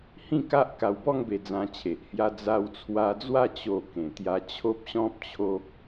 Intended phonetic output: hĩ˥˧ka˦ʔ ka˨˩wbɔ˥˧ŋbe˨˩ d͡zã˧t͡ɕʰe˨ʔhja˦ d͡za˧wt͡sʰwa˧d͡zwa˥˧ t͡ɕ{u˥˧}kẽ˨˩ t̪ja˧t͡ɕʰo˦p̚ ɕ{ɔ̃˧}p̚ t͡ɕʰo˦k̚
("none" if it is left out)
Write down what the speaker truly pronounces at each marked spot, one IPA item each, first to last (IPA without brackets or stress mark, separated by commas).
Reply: o˥˧, ɔ̃˦